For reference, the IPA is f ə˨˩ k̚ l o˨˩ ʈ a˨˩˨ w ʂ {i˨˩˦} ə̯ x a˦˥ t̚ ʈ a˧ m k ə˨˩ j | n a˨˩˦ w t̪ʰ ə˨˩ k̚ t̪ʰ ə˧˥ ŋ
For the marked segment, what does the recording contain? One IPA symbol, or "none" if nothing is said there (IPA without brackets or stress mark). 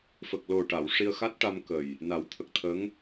i˧